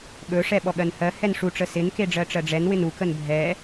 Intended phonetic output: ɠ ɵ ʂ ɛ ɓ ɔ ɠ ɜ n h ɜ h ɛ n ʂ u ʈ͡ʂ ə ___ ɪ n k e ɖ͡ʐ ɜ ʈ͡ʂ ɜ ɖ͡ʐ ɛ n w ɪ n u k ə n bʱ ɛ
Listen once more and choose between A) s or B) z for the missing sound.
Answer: A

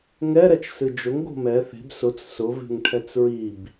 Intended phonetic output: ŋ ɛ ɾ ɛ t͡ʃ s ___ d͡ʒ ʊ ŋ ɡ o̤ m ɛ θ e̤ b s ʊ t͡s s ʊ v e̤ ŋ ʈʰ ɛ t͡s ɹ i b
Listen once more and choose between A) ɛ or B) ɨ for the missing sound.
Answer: B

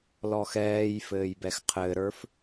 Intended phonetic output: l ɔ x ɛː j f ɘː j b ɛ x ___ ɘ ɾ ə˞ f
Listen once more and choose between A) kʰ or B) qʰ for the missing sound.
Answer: B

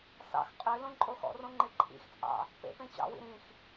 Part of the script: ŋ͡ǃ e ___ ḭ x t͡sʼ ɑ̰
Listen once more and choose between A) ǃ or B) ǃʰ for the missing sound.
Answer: B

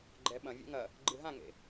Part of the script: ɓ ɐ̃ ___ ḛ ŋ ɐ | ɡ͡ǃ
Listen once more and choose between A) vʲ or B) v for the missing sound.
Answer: A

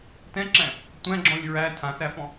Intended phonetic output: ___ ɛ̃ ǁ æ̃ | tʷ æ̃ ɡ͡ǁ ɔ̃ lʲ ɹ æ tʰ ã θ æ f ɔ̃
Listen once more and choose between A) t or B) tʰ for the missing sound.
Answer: A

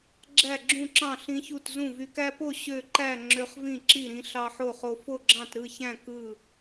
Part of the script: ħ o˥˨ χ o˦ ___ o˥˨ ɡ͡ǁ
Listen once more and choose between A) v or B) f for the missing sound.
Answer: B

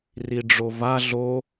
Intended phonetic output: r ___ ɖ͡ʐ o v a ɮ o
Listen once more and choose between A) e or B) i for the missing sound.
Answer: B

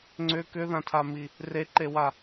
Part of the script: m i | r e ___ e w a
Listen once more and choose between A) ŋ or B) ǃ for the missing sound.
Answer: B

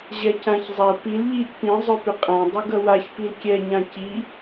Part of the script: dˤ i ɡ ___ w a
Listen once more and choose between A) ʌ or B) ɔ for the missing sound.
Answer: A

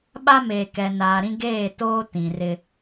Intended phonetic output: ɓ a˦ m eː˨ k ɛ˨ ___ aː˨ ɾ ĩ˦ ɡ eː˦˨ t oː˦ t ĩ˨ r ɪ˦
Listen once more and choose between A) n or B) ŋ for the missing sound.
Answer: A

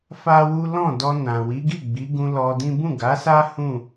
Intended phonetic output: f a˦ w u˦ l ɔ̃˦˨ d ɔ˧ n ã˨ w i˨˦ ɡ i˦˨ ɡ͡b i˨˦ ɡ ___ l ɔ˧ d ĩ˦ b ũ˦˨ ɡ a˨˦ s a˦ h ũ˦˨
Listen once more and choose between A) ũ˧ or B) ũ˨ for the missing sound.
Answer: A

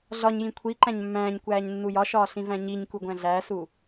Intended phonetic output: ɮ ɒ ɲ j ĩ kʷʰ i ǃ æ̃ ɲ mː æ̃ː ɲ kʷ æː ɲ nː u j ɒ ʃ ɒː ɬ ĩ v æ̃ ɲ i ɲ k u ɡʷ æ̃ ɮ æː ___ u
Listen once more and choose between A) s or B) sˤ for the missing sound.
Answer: A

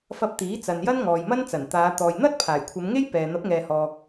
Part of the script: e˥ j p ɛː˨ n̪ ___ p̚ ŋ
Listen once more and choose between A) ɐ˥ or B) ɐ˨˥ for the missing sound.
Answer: B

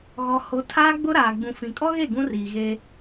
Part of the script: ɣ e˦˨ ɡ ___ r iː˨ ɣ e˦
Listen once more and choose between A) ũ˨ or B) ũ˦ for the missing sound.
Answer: B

